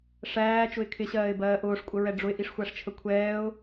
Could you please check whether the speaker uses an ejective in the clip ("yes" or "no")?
yes